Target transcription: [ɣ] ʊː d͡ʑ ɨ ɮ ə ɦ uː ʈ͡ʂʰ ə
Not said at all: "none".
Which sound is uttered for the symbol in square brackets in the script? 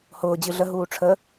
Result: h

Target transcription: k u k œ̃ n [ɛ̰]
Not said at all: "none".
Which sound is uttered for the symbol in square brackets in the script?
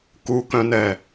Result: ɛ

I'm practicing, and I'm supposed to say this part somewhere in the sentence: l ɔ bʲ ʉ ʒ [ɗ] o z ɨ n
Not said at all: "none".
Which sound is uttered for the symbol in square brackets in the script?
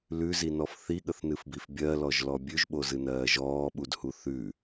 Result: ɓ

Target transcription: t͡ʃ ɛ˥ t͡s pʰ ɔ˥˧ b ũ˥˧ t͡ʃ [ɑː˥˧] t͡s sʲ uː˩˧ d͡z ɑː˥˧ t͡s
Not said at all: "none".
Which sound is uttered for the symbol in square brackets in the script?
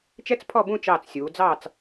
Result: ɑː˧˩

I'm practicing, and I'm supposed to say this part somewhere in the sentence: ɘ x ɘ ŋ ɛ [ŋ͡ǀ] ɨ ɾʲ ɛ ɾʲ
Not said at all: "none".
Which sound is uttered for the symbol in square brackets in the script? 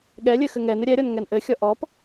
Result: n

